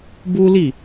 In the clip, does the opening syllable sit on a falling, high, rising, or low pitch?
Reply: high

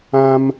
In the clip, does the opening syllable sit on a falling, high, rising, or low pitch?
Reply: high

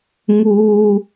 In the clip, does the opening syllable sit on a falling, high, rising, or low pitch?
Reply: high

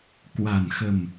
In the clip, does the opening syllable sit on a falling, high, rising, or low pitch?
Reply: low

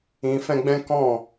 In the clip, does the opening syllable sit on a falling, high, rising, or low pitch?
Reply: low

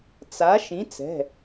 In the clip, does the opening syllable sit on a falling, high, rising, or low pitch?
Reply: rising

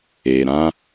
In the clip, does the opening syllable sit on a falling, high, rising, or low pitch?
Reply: low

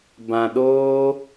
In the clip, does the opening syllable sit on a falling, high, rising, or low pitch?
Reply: low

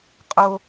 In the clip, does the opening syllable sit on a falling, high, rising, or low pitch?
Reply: low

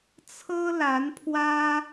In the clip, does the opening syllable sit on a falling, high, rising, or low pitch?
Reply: high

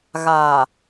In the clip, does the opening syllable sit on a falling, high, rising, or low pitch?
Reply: low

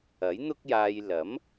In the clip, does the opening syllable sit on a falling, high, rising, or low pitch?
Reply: rising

